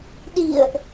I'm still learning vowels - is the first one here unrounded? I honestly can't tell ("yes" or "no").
yes